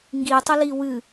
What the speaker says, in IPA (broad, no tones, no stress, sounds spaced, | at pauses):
ŋ ɡ i tˤ ə l i w ɨ